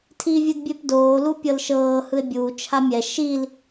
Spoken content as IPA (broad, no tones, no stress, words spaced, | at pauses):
tʰivʲɯdbʲepdoː lupʲɤlʃɤː hɯe̯bʲuː t͡ʃʰamʲɛ ʃil